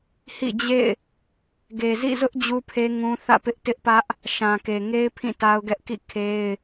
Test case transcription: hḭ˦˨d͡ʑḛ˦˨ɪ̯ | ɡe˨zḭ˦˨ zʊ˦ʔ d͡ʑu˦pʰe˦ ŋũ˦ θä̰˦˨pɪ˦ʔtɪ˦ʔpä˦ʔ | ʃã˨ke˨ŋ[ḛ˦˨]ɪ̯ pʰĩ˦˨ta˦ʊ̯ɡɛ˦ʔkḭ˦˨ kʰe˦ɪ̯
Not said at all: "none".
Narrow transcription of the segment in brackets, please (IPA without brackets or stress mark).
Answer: e˦